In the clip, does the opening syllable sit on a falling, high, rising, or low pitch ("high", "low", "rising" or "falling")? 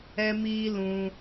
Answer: high